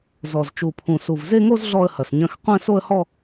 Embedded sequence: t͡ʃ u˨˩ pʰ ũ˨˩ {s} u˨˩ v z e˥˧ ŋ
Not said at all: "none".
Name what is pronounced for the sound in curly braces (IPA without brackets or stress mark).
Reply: s